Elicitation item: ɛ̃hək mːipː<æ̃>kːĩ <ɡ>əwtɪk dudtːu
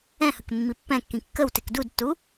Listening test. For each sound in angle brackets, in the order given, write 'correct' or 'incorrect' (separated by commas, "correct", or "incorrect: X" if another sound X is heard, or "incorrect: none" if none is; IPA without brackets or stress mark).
incorrect: ɛ̃, incorrect: kː